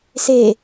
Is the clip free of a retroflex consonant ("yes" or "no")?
yes